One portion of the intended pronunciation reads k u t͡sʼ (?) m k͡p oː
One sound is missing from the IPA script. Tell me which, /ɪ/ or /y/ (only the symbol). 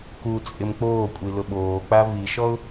ɪ